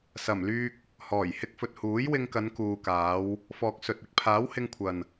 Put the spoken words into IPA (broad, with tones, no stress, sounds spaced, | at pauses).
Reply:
s ɐ˨˩ m l yː˧ k̚ | h ɔː˨˩ j h ɪ˧ k̚ f ɵ˨ t̚ h uː˨˥ j w ɪ˧ ŋ k ɐ˨˧ n k uː˨ k aː˨˧ w | f ɔː˨ k̚ s ɵ˨ t̚ ɪ˨˥ k̚ pʰ aː˨˥ w h ɪ˧ ŋ kʷʰ ɐ˨ n